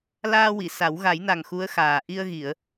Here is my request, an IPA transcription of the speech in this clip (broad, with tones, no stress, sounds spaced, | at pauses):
l aː˧ w i˨˩˨ s a˨˩˦ w ɣ a˨˩˦ j n a˨˩ ŋ x u˧˥ ə̯ x aː˨˩ ʔ i˧ ə̯ ɣ i˨˩˨ ə̯